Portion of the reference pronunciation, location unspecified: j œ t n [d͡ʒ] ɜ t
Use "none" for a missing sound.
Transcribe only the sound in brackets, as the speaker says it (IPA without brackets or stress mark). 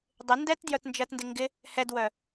d͡ʒ